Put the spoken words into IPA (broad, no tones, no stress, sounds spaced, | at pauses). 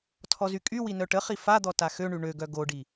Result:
tʰ ɔ z y kʼ y w i n œ ʈ ə χ i f a d̪ ɔ t a x ø ɳ y ɳ ø ɡ œ ɡ o ɖ i